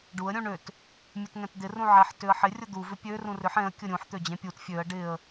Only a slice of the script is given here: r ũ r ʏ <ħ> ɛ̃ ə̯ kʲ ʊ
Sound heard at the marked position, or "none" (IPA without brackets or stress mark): ħ